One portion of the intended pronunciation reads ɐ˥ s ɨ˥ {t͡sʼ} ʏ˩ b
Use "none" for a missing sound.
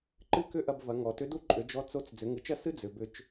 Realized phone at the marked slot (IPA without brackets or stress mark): d͡z